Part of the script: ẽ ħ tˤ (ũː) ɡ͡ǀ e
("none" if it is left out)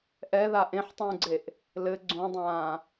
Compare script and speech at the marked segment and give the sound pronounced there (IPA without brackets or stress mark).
ũː